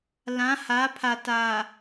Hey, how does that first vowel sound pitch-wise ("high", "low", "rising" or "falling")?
rising